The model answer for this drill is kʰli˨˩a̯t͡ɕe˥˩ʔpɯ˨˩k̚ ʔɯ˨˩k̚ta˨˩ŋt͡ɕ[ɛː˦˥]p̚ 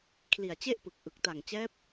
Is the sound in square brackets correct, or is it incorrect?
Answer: correct